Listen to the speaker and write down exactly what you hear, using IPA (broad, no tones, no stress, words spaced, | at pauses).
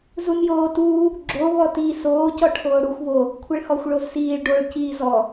zunjoːtuː | ɡ͡ǁo βɔtiːsoː cɔʈʰoːɽuxʷ βo | kʷʰɛɭhɔxʷ ɭozsiːɭ ɖoɭ ciːzɔ